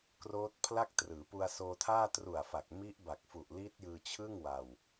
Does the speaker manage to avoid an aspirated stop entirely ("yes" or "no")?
no